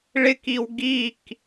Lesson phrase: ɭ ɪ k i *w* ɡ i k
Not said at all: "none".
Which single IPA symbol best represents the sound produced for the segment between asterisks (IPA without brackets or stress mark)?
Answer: w